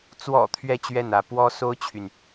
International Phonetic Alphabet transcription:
t͡s w ɔ̰˨˩ t̪ʰ ɥ ɛ˥˧ t͡ɕ ɥ ɛ˥˩ n ä˧˥ p w ɔ˥ s o˥ ʊ̯ t͡ɕʰ y˨ n

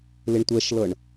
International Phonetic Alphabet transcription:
l ɪ ɳ tʷ ɛ ʃ l ɤ ɳ

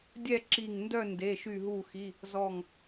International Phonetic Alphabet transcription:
dʲ ɛ˥˧ ǁ i˧˩ ŋ n d œ˥˧ n d e˩˧˩ ʃ y˧˩ ɦ u˧˩ x i˩˧˩ | z ɔ˧˩ ŋ

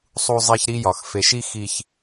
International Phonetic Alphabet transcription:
sˤ u˦ zˤ e˦ ç ɾ i˦ j ɒ˨ x f e˨ ʃ i˦ x i˦ ç

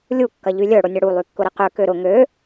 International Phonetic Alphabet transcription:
lʲ u kː ɐ ʎ y lʲ œ ɽ ʊ nʲ ɐ ɽ u lˠ y kː ʊ ɾ ɪ q ø k ø ɾ ʊ ŋ ø

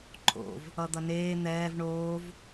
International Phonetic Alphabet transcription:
ǃʰ o̰ v | ʌ d̪ ʌ n eː n̪ ɛː v ɳ oː v

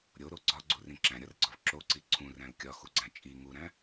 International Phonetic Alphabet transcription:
ɾʲ o ɾ o ɡ͡ǀ ɒ ɡ͡ǀ u r ĩ ǁ æ̃ ɾʲ ɒ r ɡ͡ǀ ɒ v ǁ o ǀ i ǀʰ ũ r æ̃ l kʲ ɒ x u ɡ͡ǀ æ̃ t͡ʃʼ i ŋ u ɾ æ̃

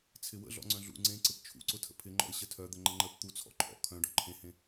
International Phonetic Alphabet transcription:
t͡sʰ ɪ w ə̰ ɮ ɔ̰ ŋ͡ǀ œ̃ ɮ ṵ ŋ͡ǀ ẽ ǀ ɪ p t͡ʃʰ ṵ ǀ ʊ tʰ ə̰ pʰ ɪ ŋ͡ǃ ɔ̰ ɪ̯ ɕ ə tʰ œ d̪ ə ŋ͡ǃ ə ŋ͡ǃ ə p t̪ u t͡sʰ ɔ̰ ǃʰ ɔ̰ kʰ œ̃ ɖ ɔ̰ ǃʰ ẽ h ẽ

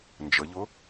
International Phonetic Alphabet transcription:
n d͡ʒ ə ʎ ʊ

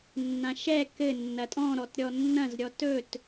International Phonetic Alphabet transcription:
nː ã ʃ ɛ k ɘ nː ɐ tʼ ɔ̃ ɾ ɔ t ɾʲ ɔ nː ɐ̃ z ɾʲ ɔ t ɵ t

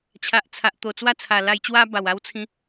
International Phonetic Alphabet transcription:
t͡ɕʰ a˨ ʔ t͡sʰ a˨ ʔ t̪ o˨˩ t͡s w a˥˧ t͡sʰ a˨˩ l a˧ j t͡ɕ w a˦ b a˨˩ w a˦ w t͡sʰ ĩ˦

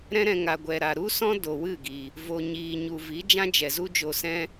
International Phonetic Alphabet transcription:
ɾ ɛ̃˦ ɾ ɛ̃˧ ŋ a˨ ɡʷ ɛ˨ ɾ a˨ ɾ u˦ s ɔ̃˦ d o˨ w ɨ˦˨ ɡ i˨ | v o˨ ɲ iː˨ ɲ u˨ v i˨˦ d͡ʒ ã˦ d͡ʒ ɛ˨ z u˦ d͡ʒ o˧ s ɛ̃˦

